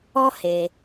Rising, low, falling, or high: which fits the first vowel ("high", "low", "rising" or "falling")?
high